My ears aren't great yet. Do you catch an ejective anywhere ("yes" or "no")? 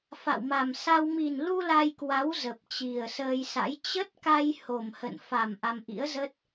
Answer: no